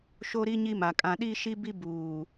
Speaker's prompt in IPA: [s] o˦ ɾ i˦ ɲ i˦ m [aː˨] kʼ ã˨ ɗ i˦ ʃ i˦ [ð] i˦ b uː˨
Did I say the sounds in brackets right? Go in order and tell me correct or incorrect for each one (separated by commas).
incorrect, incorrect, incorrect